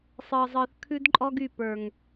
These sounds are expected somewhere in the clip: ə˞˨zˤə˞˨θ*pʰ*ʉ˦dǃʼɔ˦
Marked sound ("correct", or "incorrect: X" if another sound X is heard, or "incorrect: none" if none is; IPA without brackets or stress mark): incorrect: kʰ